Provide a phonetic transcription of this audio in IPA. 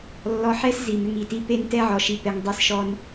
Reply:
lː ɔ˧ ħ ɛ˦ s z i˨ m ʏ˧ ŋ i˨ t i˧ p e˧ n t ɛ˧ ʕ ɔ˨ ʃ i˨ p ɛ˨ ŋ dˤ e˧ s ʃ ɔ˧ n

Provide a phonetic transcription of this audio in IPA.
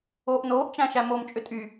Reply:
oː ʔ n oː ʔ t͡ʃ æ̃ ʃ æ m o m t͡ʃʼ ʏ tʼ y

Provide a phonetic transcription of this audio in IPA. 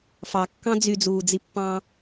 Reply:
f ɑ kː ɑ̃ d͡z y d͡z uː d͡z i pː ɑ̃ː

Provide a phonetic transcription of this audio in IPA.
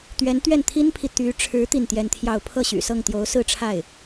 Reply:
t̪ ɥ ɛ˧˥ n t̪ ɥ ɛ˥˩ n t̪ʰ i˥ n pʰ i˨ t̪ y˧˥ ʈ͡ʂʰ ɻ̩˧˥ t̪ i˥˩ n t̪ j ɛ˥ n t̪ʰ j ɑ˥˧ ʊ̯ pʰ ɤ˥˩ ɕ y̰˨˩ s ɤ˥˩ ŋ t̪ j o˧˥ ʊ̯ s ɹ̩˥˧ ʈ͡ʂʰ a˥˩ ɪ̯

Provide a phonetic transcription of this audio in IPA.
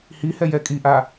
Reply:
h i h ɛ j ɛ kʼ i ʔ a

